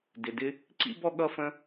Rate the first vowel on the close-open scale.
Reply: close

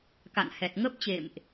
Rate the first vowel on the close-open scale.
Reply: open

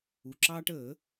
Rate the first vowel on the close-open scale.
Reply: close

